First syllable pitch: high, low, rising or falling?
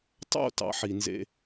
falling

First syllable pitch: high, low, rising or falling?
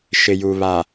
low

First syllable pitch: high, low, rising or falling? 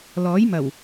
rising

